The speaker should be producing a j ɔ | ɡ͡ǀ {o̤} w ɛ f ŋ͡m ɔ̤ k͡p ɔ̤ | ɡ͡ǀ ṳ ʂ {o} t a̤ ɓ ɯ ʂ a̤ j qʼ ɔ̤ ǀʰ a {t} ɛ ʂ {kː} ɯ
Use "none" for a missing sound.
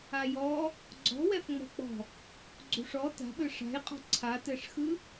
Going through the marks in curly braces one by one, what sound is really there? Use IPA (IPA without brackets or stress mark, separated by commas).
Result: ɔ̤, ɔ, t, x